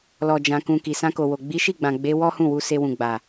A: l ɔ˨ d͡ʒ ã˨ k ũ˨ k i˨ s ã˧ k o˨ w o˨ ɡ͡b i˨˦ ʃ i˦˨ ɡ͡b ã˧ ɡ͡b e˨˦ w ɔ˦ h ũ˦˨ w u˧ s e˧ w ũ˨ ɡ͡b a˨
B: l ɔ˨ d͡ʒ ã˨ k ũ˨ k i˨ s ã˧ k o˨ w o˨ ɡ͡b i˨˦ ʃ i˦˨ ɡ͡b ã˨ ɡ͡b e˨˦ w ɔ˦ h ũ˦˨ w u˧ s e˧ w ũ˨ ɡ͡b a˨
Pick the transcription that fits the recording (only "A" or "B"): B